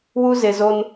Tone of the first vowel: high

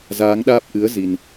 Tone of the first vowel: rising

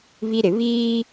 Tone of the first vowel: high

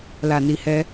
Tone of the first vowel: low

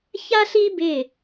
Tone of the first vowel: high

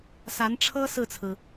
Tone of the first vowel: rising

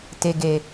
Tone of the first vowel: low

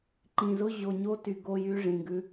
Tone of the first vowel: low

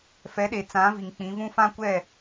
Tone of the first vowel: rising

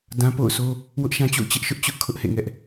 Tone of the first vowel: high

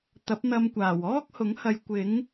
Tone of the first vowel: rising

